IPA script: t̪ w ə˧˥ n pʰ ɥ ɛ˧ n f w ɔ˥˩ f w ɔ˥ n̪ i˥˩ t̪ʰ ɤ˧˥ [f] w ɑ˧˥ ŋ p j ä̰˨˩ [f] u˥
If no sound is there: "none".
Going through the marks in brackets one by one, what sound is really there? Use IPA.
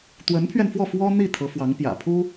f, pʰ

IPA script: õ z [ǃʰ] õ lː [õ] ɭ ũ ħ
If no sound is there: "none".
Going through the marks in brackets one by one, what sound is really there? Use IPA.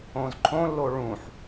ǃʰ, o

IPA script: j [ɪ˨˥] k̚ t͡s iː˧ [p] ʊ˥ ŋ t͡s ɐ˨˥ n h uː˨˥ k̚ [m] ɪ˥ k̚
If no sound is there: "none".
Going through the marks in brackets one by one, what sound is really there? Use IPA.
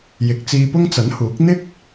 ɪ˨˥, p, n̪

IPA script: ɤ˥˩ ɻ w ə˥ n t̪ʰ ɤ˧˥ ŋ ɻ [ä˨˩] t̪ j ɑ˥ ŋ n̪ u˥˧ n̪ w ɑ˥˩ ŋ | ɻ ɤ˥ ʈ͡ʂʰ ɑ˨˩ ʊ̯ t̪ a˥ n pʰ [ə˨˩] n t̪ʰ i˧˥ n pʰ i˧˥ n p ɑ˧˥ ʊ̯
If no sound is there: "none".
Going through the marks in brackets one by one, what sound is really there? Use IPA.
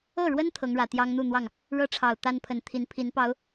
ä˨˩, ə˨˩

